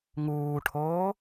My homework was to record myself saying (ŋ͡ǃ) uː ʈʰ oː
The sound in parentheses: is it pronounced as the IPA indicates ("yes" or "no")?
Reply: no